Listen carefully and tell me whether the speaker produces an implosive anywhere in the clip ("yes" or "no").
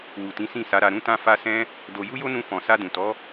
no